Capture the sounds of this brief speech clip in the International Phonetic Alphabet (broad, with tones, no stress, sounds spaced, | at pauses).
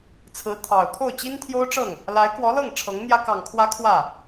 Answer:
t͡sʰ ɹ̩˧˥ t̪ʰ ɑ˨˩ ʊ̯ t̪ʰ o˥˩ ʊ̯ t͡ɕ i˥ n t̪ʰ j o˥ ʊ̯ ʈ͡ʂ ɤ˥˩ ŋ | l a˧˥ ɪ̯ k w ɔ˧˥ l ɤ˥˩ ŋ ʈ͡ʂʰ ɤ˧˥ ŋ n̪ j ä˥ k ɑ˨˩ ŋ kʰ w ä˧˥ kʰ w ä˥˩